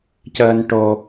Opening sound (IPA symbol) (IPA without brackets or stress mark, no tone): c